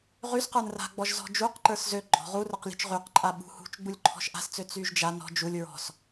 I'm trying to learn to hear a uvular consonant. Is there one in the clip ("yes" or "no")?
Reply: yes